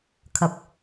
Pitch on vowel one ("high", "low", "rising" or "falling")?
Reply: low